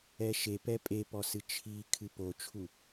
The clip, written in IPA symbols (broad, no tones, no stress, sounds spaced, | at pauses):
ɛ ʃ e p ɛ pʼ e p ɔ s ɨ t͡ʃʰ i kʰ ɨ p o t͡ʃʰ u